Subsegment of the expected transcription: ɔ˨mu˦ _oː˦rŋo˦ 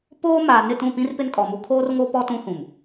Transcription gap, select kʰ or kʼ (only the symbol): kʰ